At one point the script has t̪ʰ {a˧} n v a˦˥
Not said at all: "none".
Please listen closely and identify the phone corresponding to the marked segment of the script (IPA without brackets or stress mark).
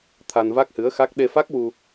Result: a˧